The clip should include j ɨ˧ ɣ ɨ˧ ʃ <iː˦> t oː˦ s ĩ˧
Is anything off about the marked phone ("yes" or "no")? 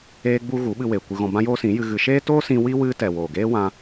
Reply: yes